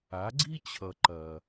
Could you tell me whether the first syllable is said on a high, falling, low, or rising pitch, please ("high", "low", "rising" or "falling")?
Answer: rising